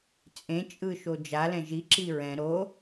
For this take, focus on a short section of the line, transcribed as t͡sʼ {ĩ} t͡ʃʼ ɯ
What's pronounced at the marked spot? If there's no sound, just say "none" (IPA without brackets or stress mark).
ẽ